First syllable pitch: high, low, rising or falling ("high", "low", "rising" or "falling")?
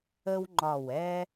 high